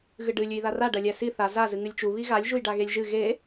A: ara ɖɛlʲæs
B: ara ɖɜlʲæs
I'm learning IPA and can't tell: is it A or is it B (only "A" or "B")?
B